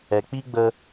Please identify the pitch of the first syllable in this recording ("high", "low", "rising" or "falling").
low